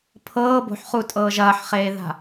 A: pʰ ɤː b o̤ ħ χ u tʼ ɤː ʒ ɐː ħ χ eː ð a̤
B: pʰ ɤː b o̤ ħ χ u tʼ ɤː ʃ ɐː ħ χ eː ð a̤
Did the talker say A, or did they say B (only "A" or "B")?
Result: A